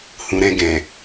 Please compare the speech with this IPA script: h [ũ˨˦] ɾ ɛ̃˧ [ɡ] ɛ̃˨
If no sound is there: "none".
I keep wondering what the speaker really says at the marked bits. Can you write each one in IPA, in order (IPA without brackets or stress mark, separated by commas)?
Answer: ũ˨, ɡ